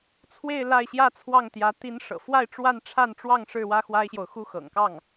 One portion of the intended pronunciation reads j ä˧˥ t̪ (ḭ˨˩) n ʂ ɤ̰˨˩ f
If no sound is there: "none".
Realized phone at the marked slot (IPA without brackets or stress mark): i˧˥